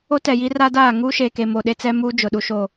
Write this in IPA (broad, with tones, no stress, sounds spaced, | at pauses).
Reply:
o˦ t ɛ˨ j i˦ r a˦ d aː˦˨ ŋ uː˦ ʃ eː˨ k e˨ m o˨ ɗ e˦ t͡s ɛ˦ m uː˦ d͡ʒ ʊ˨ ɗ u˦ ʃ o˦˨